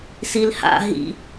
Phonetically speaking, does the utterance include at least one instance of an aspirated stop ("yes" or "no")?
no